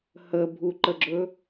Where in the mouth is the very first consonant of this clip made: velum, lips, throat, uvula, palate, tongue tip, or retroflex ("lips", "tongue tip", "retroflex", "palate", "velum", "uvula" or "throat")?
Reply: throat